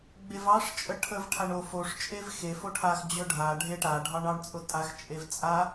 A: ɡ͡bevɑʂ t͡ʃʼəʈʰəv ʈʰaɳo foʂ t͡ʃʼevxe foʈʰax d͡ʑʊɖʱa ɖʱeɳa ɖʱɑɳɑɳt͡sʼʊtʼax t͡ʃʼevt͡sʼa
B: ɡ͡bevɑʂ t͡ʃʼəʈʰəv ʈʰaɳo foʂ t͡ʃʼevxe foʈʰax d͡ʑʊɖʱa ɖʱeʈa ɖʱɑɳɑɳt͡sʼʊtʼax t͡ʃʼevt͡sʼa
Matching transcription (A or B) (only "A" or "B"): B